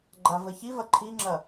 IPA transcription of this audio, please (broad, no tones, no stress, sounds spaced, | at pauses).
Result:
ɡ͡ǃ a v ə ç i v ɐ ǃʰ i ŋ͡ǁ ɐ